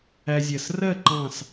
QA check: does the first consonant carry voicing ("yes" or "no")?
yes